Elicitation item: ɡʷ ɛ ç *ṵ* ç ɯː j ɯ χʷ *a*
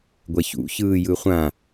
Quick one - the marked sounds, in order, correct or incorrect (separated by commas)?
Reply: correct, incorrect